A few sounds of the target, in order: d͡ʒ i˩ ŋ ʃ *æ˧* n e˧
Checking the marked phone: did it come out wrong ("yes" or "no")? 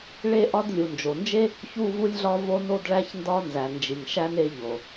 no